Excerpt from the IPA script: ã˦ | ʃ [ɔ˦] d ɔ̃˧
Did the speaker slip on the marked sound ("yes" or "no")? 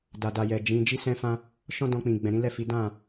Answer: yes